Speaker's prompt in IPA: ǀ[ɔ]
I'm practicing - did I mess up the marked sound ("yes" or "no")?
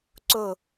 yes